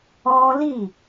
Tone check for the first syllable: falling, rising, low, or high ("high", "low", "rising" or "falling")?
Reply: high